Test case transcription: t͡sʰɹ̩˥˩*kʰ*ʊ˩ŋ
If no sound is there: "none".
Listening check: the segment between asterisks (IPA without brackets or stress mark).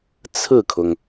kʰ